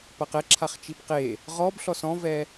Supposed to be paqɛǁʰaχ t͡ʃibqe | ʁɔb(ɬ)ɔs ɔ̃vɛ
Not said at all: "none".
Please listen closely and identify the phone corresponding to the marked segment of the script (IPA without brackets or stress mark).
ɬ